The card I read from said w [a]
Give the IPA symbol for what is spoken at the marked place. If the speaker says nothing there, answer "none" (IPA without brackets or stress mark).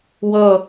ʌ